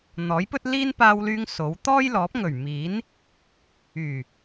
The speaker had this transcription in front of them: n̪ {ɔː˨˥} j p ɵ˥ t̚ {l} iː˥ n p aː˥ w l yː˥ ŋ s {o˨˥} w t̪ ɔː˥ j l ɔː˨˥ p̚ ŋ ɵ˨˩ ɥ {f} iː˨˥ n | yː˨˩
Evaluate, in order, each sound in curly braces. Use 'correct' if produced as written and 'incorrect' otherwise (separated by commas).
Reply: correct, correct, correct, incorrect